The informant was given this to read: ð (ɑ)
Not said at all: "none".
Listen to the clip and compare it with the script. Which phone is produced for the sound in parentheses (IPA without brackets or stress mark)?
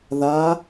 a